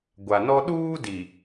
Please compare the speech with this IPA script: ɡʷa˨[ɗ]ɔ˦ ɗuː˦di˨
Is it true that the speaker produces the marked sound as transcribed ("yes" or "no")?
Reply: no